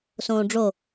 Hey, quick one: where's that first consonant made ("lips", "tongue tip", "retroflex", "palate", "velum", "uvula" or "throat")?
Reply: tongue tip